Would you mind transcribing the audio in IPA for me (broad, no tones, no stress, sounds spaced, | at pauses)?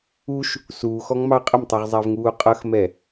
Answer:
u ʃ | s uː x ɔ ŋ m ɑ qʼ ə m tˤ u ʁ zˤ æ v ŋ uː qʼ ʌ x m ɛ